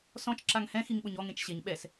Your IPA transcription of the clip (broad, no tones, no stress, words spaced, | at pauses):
sɔ̃t͡ʃǁaŋ hɛ̃xiŋɓʊɲ ɔŋẽt͡ʃ ɕeɲ ɓɛs